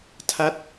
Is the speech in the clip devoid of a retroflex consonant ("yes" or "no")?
yes